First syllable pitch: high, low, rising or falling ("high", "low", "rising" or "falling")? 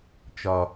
low